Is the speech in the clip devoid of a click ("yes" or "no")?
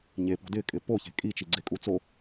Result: no